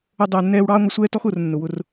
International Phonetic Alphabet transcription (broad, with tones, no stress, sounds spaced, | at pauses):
ə˧ dˤ ʊː˨ nː ɛː˧ w ɽ ɑː˦ ŋʷ ʌ˧ sʷ ɛː˦ t ɔ˦ x ʊː˨ r nː ʊ˨ w ʊ˧ r